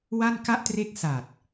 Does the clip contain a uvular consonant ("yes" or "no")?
no